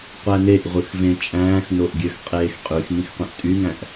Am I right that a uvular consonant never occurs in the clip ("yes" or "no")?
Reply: no